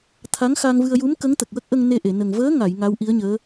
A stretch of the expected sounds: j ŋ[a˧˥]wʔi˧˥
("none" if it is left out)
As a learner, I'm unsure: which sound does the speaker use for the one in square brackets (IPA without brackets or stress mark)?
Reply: a˧˥